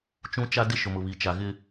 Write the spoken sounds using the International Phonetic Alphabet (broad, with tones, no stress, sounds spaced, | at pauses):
t͡ʃ ũ˦ t͡ʃ a˦ d ɪ˦ ʃ ʊ˨ m ʊ˨ β i˨ t͡ʃ a˨ ɣ ɪ˦